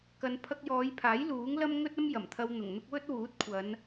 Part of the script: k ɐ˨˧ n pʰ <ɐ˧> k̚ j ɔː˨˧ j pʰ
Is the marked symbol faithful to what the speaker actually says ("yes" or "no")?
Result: yes